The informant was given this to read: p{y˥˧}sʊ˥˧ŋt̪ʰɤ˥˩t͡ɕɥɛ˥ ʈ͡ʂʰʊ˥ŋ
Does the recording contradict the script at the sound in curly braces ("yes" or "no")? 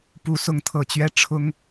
yes